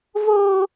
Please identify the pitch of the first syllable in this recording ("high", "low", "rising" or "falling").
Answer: high